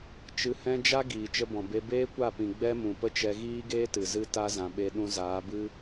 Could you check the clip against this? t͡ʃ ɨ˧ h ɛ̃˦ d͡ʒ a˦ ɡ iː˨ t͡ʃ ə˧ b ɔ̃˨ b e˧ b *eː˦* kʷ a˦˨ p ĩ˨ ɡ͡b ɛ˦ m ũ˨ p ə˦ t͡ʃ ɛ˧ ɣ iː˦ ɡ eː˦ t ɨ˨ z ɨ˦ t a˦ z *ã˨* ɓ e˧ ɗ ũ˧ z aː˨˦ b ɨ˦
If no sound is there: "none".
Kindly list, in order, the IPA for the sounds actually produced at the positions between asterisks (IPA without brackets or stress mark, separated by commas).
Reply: eː˦, ã˨